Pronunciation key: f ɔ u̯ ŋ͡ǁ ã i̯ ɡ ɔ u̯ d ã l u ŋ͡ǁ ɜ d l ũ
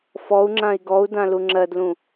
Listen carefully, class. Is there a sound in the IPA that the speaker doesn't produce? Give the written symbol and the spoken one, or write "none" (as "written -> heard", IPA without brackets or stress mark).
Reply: none